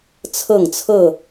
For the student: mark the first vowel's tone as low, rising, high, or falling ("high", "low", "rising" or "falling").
falling